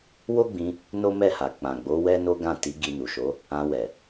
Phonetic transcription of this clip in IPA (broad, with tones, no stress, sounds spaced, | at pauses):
w o˦ ɡ͡b ĩ˧ | n o˦ m ɛ˦˨ h a˨ k͡p ã˨ ɡ͡b o˨˦ w ɛ˦ n o˦ ɡ ã˦˨ t i˨˦ ɡ i˧ n u˨ ʃ o˨˦ | ã˧ w ɛ˨